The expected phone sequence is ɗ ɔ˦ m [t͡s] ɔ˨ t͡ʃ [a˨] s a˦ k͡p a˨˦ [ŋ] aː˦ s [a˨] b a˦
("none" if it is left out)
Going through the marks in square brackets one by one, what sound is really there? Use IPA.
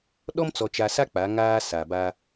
t͡s, a˨, ŋ, a˨

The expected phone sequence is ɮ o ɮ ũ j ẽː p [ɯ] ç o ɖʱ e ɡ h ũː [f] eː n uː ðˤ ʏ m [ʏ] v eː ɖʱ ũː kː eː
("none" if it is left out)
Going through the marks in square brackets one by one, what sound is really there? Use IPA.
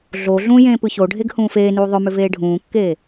ɯ, f, ʏ

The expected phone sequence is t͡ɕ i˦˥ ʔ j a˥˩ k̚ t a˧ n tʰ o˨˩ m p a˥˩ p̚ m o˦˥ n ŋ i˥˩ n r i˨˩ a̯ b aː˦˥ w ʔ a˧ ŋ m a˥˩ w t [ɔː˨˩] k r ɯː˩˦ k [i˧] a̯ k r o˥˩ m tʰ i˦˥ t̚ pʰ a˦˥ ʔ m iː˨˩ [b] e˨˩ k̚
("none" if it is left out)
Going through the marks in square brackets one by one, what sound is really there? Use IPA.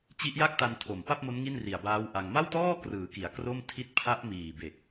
ɔː˥˩, i˩˦, b

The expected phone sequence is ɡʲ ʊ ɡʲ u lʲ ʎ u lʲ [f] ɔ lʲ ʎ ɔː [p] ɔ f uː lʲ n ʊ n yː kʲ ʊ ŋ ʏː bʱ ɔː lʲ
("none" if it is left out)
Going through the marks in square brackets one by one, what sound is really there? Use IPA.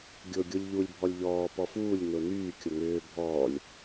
bʱ, p

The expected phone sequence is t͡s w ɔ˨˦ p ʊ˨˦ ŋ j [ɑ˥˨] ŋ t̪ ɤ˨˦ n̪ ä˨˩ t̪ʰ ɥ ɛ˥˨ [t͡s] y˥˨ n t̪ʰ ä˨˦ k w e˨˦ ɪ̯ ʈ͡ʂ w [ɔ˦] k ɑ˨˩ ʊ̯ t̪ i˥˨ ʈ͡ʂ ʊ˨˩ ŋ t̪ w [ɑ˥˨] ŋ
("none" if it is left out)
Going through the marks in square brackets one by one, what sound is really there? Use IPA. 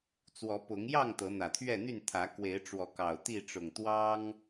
ɑ˥˨, n̪, ɔ˨˦, ɑ˦

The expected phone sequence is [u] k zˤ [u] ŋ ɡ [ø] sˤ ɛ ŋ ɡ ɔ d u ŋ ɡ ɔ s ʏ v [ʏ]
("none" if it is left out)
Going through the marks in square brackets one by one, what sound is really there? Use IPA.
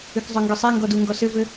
ʏ, ø, ø, ʏ

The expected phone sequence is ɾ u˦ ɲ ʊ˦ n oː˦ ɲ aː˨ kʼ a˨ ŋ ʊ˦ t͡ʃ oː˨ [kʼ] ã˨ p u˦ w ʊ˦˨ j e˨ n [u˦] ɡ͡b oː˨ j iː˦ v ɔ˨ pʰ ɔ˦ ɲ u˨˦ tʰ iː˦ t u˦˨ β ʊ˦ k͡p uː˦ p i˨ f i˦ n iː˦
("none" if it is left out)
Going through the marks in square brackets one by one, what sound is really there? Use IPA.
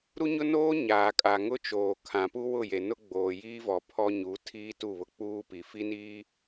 kʰ, ʊ˦

